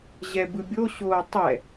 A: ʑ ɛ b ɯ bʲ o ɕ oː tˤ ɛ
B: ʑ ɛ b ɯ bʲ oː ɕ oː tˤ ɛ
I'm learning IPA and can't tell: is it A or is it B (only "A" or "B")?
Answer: A